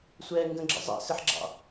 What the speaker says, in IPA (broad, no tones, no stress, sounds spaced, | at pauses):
sʷ ɛː ŋ ɡ ə̃ ɡ͡ǁ ə̰ zˤ ɛ̰ s ɪ ħ ɡ͡ǁ ɑ̰